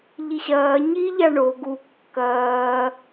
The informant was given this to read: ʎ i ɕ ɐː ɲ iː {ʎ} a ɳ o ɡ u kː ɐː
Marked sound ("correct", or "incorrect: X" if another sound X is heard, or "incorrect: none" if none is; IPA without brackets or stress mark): correct